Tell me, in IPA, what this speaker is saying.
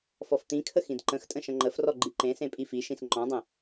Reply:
f ɔ f t̪ ĩ kʰ ə x ĩ d ǃ ə̃ x tʼ ə̃ ʃ ə̃ ŋ͡ǃ ə f r ɔ ɡ͡ǃ i ǃ ẽ s ẽ pʼ i f i ʃ ĩ s ŋ͡ǃ ɔ̃ dˤ ə̃

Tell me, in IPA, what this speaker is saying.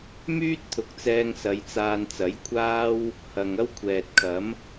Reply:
m yː˥ t̚ t̪ʰ ʊ˨˥ k̚ t͡s ɛː˧ ŋ s ɐ˨˧ j t͡s aː˧ n t͡s ɐ˨˥ j kʷʰ aː˥ w | h ɐ˨ ŋ ɐ˥ w kʷʰ ɛː˨ t̚ kʰ ɐ˨˥ m

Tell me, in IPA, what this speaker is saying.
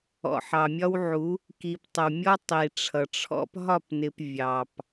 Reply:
ɔ̰˨ ħ ɑ˨ mʲ ɒ˦ w ʕ u˨˦ | k i˨ p tˤ ə˨ w mʲ ɔ˦ tˤ i˨ ʈ͡ʂʰ ʌ˨ ʈ͡ʂʰ ɔ̰˦ p ɦ ɒ˦˨ p n ɪ˨ p vʲ ɑ˨ p

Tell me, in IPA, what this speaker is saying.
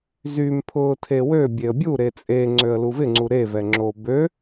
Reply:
z y m pʰ ʊː tʰ e w ø bʲ e ə̯ bʲ u ɾ e t͡sʼ e ŋ͡ǀ ø ə̯ l u v ɪ ŋ͡ǀ u ɾ e v ɛ ŋ͡ǁ o b ø

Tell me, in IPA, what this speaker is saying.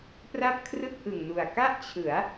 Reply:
p r a˥˩ p̚ kʰ r ɯ˥˩ k̚ ʔ ɯ˨˩ ŋ n u˨˩ a̯ k a˥˩ ʔ t͡ɕʰ ɯ˩˦ a̯

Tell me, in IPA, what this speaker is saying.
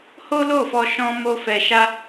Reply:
h o˦ l o˦˨ f ɔ˧ ʃ ɔ̃˦ m o˦ f ɛ˧ ʃ a˦

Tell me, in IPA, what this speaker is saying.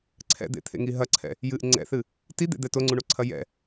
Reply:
ǀʰ ɛ̰ d̪ ḛ t̪ʰ ḛ ŋ i ɦ ɐ ǀʰ ɛ̰ | j ɨ ʔ ŋ͡ǀ ɛ̰ θ ɨ | t i d̪ ḛ d̪ ɛ t o ŋ͡ǀ u ɳ o ǀʰ ɐ j ɛ̰

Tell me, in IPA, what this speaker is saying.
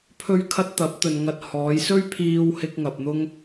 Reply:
pʰ ɵ˥ ɥ kʰ ɐ˥ t̚ t̪ ɐ˨˥ p̚ t̪ ɵ˨ n ŋ ɐ˧ t̚ h ɔː˨˧ j s ɵ˥ ɥ pʰ iː˧ w h ɪ˧ k̚ ŋ ɐ˨ p̚ n̪ ʊ˥ ŋ

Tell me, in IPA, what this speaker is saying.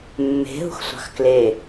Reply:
mː e̤ ɦ ṳ x sʷ ɑ̤ x k l e

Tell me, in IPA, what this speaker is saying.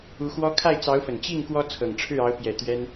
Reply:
u˧˥ x w ɔ˥ kʰ a˥˩ ɪ̯ t͡s ɑ˧˥ ʊ̯ f ə˨˩ n t͡ɕ i˥˩ ŋ k w ɔ˥ t͡sʰ ɤ˨˩ ŋ ʈ͡ʂʰ ɻ̩˥˩ ɑ˧˥ ʊ̯ p j ɛ˨˩ t̪ ɥ ɛ˥ n

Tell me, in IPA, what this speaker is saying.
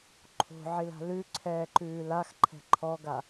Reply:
ǃʰ o̤ ʕ i l a̤ l ʉ ǀʰ ɛː ǃ ʉː l a x ǃʰ ɛ̤ ǃʰ ɔ ɡ a

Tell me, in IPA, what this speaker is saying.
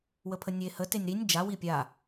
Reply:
w ə pʰ ə nʲ e h ə t e nʲ ɾ i nʲ d͡ʒ a w i pʲ a

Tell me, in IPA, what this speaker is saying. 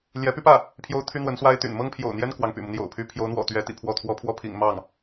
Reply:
l j ɛ˧˥ p y˥ p ä˥˩ | pʰ j o˥ ʊ̯ t̪ʰ y˥ n̪ w ə˧˥ n s w a˥ ɪ̯ t̪ y̰˨˩ n m ɤ˥ ŋ pʰ j o̰˨˩ ʊ̯ n̪ j ɛ˥ n k w ɑ˧˥ ŋ p y̰˨˩ m u˦ n̪ j o̰˨˩ ʊ̯ pʰ y˧˥ pʰ j o˧˥ ʊ̯ n̪ w ɔ̰˨˩ t̪ ɥ ɛ˧˥ t̪ ḭ˨˩ pʰ w ɔ˥˩ t̪ʰ w ɔ˥ pʰ w ɔ˥˩ pʰ ḭ˨˩ ŋ m ɑ˥˩ ŋ

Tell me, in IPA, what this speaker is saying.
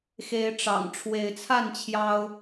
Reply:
x e˨˦ ɪ̯ ʈ͡ʂ ɑ̰˨˩ ŋ ʈ͡ʂʰ w e˨˦ ɪ̯ t͡sʰ a˥˨ n t͡ɕʰ j ɑ˦ ʊ̯

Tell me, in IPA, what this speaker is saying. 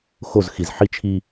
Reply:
x o z x i z ħ i t͡ʃʰ i

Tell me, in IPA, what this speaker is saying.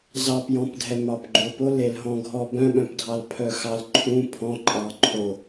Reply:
z ɑ p j ɔ̃ p dʱ ɛ m ɑ p ɡ͡ǃ o p o l e l ɦ ɔ̃ ɡʱ ɔ b œ̃ ɓ œ̃ p dʱ ɑ l pʰ œ x ɑ l ǃʰ ũ pʰ ɔ̃ ǃʼ ɑ ǃʰ o

